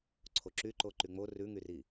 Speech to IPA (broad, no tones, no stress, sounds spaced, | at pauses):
ǀʰ o ǁ y ǃ o ǃ y ŋ͡m o r ʉ ŋ y r i